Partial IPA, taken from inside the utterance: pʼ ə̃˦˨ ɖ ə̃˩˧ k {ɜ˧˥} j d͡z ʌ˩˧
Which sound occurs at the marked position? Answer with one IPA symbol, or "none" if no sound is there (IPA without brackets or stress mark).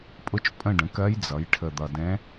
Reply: ɜ˧˥